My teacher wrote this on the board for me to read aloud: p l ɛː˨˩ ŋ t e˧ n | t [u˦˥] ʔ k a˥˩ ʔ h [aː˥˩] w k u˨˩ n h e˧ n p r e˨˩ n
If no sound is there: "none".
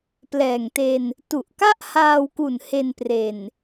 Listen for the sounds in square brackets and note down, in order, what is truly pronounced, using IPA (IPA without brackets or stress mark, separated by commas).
u˨˩, aː˧